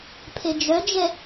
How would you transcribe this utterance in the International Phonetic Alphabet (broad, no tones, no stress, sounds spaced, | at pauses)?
pʰ e d͡ʒ œ d͡ʒ ɛ